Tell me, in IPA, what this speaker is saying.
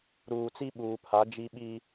ɾ uː˨ t͡s i˦ ɓ uː˨ pʰ a˨˦ d͡ʒ i˦ ɓ i˦

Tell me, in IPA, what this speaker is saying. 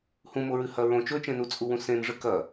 h ũ m o ɹ ɨ h ɐ ɹ õ t͡ʃ ɵ t͡ʃ ẽ n u t͡sʼ u w ũ s ẽ n ʐ ɨ k ɐ

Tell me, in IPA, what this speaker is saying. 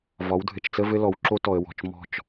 v ɒ˨˦ w dʱ ɘ˨ t͡ʃ t͡s ə˦ v ɘ˦ l ɔ˨ w ǁ o˦ t ɔ˨ ə̯ w ɔ̤˨ t͡ʃ m ɔ̤˦˨ t͡ʃ

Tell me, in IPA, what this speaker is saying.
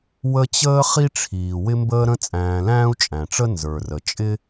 w ə˦ t͡ɕ əː˥ χ i˥ ʈ͡ʂʰ iː˩ w ɪ˦ m b əː˦ ɾ ə̃˦ t͡sʼ æ̃ː˨ l æ̃ː˥ u̯ t͡ʃʼ æ̃˩ ʈ͡ʂ ə˥ n z ə˞˩ r ə˩ t͡ʃʼ ɪ˥

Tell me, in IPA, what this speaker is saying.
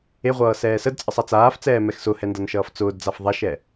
e ʁʷ ʌː s ɛː s ə d t͡sʼ ə sˤ a t͡s aː f t͡s ɛː m ɛ x s ʊ h ɛ n d ʌ n ʃ ʌː f t͡s ʊː d d͡z a f ðˤ a ʃ ɛ

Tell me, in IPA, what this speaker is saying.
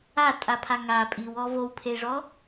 a tʼ a pʰ a ŋ a pʼ i w ɔ v o w pʰ e ʐ ɔ

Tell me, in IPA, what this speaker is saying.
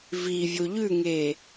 v i vʲ o ʎ ʉ ŋ eː

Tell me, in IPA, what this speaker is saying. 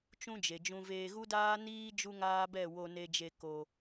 t͡ʃ ũ˦ d͡ʒ e˨ d͡ʒ ũ˧ v eː˧ ɣ u˦ d aː˦ n iː˦ d͡ʒ u˦ ŋ aː˦ b ɛ˦˨ w o˧ n e˧ d͡ʒ e˧ k o˧

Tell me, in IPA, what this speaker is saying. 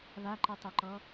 β a ǃ ɯ tˤ ɛ ǃ ɔ

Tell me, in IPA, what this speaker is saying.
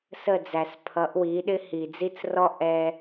s ə˦˨ d͡z æ˨ s pʰ ʌ˨˦ ʔ w i˨˦ ɗ ɪ˦ h i˨ d͡z i˦ t͡s r ɔ˦ ʔ ɛ˦

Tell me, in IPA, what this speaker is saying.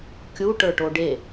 kʲ u ʈ ə˞ ʈ o ɖ e

